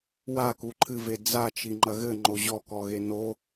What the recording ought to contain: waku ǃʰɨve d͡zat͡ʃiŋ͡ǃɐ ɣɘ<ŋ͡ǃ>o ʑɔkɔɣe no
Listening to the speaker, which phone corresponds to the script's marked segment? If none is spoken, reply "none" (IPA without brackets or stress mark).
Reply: ŋ͡ǃ